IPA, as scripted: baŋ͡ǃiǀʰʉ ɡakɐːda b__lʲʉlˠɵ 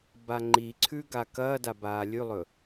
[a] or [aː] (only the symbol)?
aː